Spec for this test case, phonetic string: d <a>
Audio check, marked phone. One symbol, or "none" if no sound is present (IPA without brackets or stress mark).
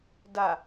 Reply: a